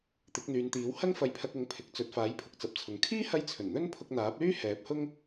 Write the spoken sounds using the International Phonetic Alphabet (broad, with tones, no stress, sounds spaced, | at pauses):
t̪ ɪ˨˥ k̚ n̪ yː˨˧ n t̪ iː˨˥ w h ɐ˥ ŋ f ɐ˧ j pʰ ɐ˧ k̚ ʊ˨˥ ŋ pʰ ɪ˨ k̚ t͡s ɵ˨ t̚ f aː˨˥ j pʰ ʊ˨ k̚ t͡s ɐ˨ p̚ t͡sʰ ʊ˨ ŋ kʰ iː˥ h ɐ˧ j t͡sʰ ɵ˨˩ n n̪ ɵ˥ n pʰ ʊ˧ k̚ n̪ aː˨˥ p̚ l yː˥ h ɛː˨˥ p̚ h ʊ˥ ŋ